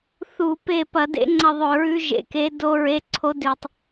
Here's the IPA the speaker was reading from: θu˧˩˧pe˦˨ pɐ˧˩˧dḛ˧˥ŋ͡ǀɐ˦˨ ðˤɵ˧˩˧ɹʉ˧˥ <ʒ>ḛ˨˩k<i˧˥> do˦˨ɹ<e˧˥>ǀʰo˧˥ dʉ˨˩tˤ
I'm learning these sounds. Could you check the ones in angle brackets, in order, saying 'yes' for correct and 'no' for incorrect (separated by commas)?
yes, no, no